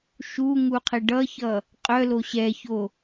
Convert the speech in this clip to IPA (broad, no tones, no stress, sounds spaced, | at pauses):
ʃ u ŋ u qʰ ɪ ɖ ʌ ç ʌ | qʼ œ l o ɕ ɛ ç o